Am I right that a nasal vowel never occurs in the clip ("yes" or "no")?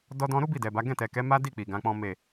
no